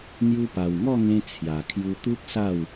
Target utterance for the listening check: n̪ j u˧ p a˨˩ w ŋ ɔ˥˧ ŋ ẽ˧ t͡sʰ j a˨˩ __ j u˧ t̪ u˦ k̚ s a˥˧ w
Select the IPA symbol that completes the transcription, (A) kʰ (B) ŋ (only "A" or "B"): A